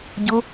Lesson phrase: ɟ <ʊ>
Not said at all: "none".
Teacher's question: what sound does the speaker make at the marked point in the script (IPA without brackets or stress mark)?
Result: ʊ